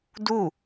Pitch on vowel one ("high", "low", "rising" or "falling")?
falling